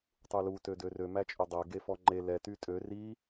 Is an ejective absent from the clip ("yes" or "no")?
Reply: no